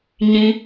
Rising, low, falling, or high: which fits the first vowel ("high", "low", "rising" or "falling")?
high